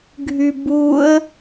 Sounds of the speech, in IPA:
ɡʱ y b u ə̯

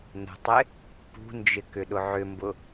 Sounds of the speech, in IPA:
n ə̤ tˤ ɪ | p ṳ n d͡ʒ ɪ k ʏ ɗ ʊ ʕ ʏ m b ʊ

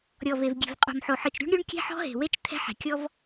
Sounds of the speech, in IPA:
ɾʲ ɔ˨ v e˨ v ɡʲ e̤˨ v qʼ o̤˨ m ħ o˨ ħ ɯ˨ t͡ʃ ɾʲ ṳ˦ ɳ ɾʲ u˦ ɳ kʲ ɛ̤˦ ħ ɔ̤˦ ɦ e̤˨ w e˦ t͡ʃ t̪ʰ ɛ̤˦ ħ ɛ̤˨ kʲ ɔ˦ v

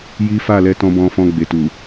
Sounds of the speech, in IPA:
j i˦ f a˦˨ l ɛ˧ t ɔ̃˧ b ɔ̃˧ f ɔ̃˧ ɡ͡b e˨ t u˨

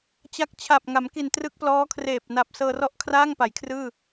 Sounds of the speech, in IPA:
t͡ɕ a˦˥ k̚ t͡ɕʰ a˨˩ p̚ ŋ a˩˦ m k i˨˩ n t r ɯ˦˥ k̚ p l ɔː˦˥ kʰ r eː˨˩ p̚ n a˨˩ p̚ s ɤː˧ r ɔ˥˩ ʔ kʰ r aː˥˩ ŋ p a˩˦ j kʰ r ɯː˥˩

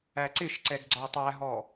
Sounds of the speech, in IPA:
æ ǀ ɪ ʃ ǀ ɛ ɡ ɡ͡ǀ ɑ tˤ æ ɦ ɔ

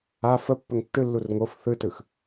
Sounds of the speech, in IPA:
a f ə pː ə ŋ tː ɯ lː u r ŋ o f θ ɯ t ɯ x

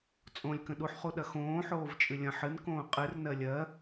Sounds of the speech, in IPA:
t͡sʼ õ lʲ k ə̃ ɗ u ħ χ u ɗ ɐ x õː ħ oː v t͡ʃʼ ɨ lʲ ɐ̃ ħ ɨ n k õː qʼ ɨ r n ɜ lʲ ɜ

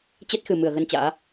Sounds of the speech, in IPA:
t͡ɕ ɛ˦˥ t̚ x ɨ˨˩ m ɨ˧˩ ə̯ ɣ ə˧ n t͡ɕ a̰ː˧˥

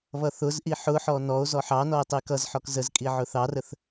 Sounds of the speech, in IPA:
β ʌ θ ʊ z ʔ i ħ ʊ ħ ɔ n ɔ o̯ z ɔ ħ ɑ n ɔ e̯ tˤ i k ʌ z ħ ɔ k z ə z kʼ i ʕ ʊ θ ɑ r ə θ

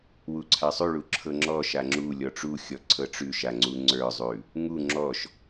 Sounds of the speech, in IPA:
w u ǀʰ a sˤ ʉ ɭ u ǁʰ ɤ ŋ͡ǁ ɔ ʃ a ŋ͡ǁ u lʲ ɔ ʈ͡ʂ u xʲ ɔ ǀʰ ɤ ʈ͡ʂ ʉ ʃ a ŋ͡ǀ u ŋ͡ǀ ə˞ zˤ ʉ | ŋ u ŋ͡ǁ ɔ ʃ

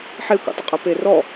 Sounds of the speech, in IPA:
ħ e kʷ ḭ tˤ ɪ qʼ ɛ p e r ɔ

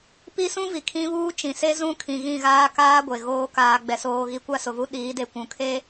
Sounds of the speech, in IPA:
p i˦ s ũ˦ v i˨ kʰ ĩ˦ β uː˦ t͡ʃ ĩ˨ s e˦ z ũ˦ kʰ ĩ˨ ɣ ĩ˦˨ ɣ aː˦ k aː˦ ɡʷ e˨ ɣ oː˦ k aː˨ ɡ͡b ɛ˨ s oː˨ ɣ i˨˦ kʷ a˦ s ʊ˨ v u˦ ɗ iː˨˦ d e˨ kʷ ũ˨ kʰ eː˦

